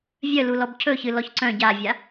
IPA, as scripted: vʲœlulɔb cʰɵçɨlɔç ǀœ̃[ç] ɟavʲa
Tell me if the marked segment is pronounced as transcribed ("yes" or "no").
no